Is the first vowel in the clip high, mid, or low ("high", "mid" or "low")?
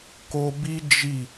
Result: mid